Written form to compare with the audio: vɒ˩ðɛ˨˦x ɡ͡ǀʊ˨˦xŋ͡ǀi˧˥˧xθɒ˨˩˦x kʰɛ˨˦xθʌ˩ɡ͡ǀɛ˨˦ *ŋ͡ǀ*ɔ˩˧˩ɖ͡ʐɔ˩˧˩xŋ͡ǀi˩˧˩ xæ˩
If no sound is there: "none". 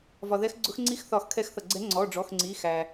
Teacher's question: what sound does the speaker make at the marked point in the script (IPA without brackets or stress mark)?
ŋ͡ǀ